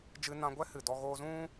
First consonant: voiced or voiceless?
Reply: voiced